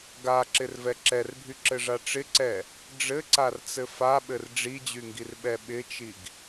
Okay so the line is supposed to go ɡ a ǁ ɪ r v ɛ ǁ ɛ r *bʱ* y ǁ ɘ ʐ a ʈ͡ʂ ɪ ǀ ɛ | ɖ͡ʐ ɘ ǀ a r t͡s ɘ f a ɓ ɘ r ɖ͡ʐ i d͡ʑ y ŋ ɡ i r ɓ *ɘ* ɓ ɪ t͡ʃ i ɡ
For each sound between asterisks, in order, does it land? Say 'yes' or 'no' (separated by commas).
yes, no